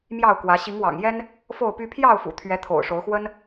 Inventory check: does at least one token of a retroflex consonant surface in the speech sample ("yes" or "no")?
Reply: yes